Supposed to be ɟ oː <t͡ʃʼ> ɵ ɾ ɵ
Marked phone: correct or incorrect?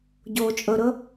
correct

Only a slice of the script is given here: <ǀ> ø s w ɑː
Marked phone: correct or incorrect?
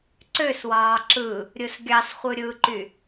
correct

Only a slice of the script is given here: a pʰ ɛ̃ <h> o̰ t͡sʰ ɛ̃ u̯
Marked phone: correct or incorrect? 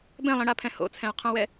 correct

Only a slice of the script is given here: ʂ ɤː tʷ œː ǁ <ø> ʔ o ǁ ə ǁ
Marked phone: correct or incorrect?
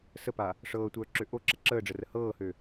correct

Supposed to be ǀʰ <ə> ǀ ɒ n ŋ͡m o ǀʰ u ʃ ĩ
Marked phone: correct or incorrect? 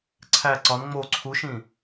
incorrect: æ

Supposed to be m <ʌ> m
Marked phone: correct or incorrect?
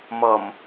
correct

